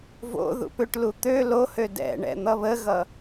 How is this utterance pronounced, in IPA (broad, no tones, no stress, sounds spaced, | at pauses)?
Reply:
v o̰ ð ṵ p ʏ ʈ l u t̪ ø l o h ø d ɛ̰ ɳ ɛ̰ n̪ ʌ β ə ɣ ʌ